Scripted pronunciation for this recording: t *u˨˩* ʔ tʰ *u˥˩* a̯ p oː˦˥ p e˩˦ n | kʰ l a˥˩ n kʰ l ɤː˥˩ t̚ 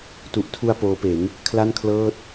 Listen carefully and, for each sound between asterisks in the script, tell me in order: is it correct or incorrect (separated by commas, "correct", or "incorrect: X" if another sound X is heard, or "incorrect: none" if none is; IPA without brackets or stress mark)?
correct, incorrect: u˧